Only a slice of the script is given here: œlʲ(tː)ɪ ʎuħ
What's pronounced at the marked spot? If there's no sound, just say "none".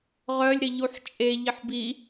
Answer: ɾ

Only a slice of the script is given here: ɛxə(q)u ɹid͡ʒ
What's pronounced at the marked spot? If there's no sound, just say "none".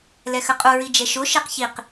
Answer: qʼ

